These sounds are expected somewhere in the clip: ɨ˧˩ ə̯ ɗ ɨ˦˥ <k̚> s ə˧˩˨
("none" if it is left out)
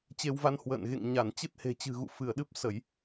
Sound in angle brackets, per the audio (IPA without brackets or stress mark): p̚